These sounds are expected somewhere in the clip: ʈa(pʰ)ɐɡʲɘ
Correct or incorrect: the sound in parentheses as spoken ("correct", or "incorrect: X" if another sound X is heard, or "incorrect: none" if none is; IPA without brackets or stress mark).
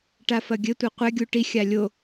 incorrect: f